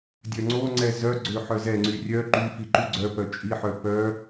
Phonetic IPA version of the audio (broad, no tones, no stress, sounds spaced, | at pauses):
dʲ œ ŋ͡ǀ o ŋ͡ǀ ɛ z œ ɡ͡ǀ ø ħ œ z ɛ ŋ͡ǀ y rʲ œ ǃ y f i ǃ y ɡ͡ǀ œ p œ t͡ʃʼ i ħ œ p œ